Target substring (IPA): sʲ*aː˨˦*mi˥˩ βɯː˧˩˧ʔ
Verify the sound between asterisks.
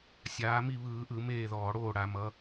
correct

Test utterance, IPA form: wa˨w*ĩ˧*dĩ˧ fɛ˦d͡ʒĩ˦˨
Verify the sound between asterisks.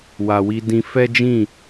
incorrect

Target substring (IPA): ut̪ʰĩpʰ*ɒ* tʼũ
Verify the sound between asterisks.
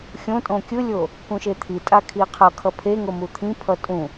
incorrect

